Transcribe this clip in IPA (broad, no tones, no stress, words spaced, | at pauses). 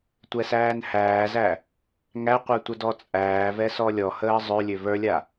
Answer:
tʷɛsæːnhæːzæ | ŋæqʷə˞ tʷədɔt͡sʼæːvɛ sɔlʲɔhəː zˤølʲø və˞lʲa